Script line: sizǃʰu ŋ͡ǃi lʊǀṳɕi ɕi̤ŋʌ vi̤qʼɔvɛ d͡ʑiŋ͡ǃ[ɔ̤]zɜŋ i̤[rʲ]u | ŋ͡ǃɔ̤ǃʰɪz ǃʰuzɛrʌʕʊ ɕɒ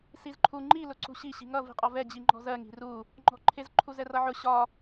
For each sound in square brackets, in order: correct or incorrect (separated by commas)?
correct, incorrect